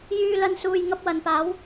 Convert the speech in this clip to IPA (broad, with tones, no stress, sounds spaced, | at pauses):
j yː˨ l ɐ˧ n s uː˨ j ŋ ɐ˧ p̚ w ɐ˨ n p aː˨˧ w